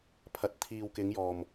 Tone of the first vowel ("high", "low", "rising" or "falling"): low